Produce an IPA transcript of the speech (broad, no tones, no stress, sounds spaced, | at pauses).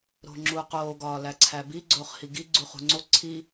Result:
ɾ o̤ ŋ͡ǁ u q oː ɡ ɒː l æ ǀʰ æ b i ɡ͡ǀ oː χ h i ɡ i ɡ͡ǀ u χ ṳ ŋ͡ǀ o ǀʰ i